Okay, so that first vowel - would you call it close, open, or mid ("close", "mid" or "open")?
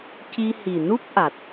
close